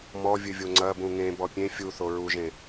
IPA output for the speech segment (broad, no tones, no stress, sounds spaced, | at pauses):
m ɔ vʲ ɨ vʲ o ŋ͡ǀ ɐ b ũ ŋ ẽ b ɔ pʲ ẽ fʲ u θ o ɹ u ʒ ẽ